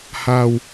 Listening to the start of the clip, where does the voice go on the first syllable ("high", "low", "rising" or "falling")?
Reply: low